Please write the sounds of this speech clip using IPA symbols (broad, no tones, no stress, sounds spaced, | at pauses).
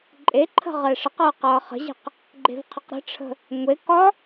ǃʼ e ǃʰ ə̤ ʁ ɛː ʂ ə q ʌː q ʌː χ ə̤ ʑ ɛ̤ q | ɡ͡ǃ e̤ v qʰ ə q ɾ ə̤ ʈ͡ʂʰ ə̤ | ŋʷ e k ɒ